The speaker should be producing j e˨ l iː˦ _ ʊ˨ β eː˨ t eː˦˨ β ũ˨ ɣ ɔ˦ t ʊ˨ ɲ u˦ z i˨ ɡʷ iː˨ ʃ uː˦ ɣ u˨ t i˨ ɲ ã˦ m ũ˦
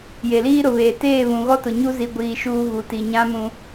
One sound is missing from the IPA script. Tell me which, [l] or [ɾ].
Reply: ɾ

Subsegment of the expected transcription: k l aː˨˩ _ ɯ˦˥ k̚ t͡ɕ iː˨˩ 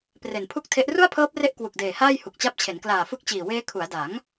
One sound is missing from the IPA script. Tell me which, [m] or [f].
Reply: f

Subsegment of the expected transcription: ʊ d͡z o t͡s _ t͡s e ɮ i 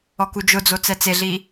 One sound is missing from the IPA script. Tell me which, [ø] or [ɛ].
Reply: ɛ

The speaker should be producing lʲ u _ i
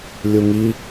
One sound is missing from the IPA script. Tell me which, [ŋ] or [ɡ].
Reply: ŋ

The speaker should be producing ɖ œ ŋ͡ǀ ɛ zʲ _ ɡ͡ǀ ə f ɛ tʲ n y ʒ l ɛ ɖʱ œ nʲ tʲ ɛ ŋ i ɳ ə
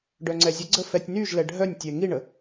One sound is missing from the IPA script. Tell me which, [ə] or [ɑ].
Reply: ə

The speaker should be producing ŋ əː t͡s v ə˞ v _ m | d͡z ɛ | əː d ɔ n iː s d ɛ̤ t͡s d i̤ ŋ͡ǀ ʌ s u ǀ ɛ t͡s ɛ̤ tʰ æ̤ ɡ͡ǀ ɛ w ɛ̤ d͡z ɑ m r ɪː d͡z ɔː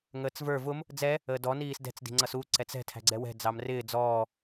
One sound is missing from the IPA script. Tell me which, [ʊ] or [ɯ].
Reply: ʊ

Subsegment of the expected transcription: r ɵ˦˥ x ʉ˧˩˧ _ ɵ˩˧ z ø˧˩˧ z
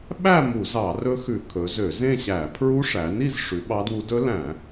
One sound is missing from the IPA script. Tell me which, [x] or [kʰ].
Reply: kʰ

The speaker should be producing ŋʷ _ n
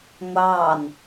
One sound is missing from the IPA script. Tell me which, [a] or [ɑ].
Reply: ɑ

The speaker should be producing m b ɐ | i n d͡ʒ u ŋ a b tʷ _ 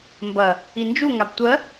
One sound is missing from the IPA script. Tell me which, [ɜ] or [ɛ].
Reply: ɜ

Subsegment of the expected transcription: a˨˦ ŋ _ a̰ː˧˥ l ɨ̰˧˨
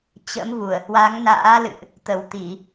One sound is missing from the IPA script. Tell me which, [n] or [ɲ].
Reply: n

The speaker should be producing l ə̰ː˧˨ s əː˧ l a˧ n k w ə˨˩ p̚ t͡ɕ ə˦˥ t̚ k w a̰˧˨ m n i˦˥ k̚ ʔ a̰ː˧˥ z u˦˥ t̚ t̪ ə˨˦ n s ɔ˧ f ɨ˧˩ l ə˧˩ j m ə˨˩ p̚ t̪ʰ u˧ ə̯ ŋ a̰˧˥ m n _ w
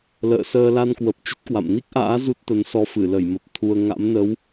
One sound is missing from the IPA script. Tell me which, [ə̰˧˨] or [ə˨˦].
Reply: ə˨˦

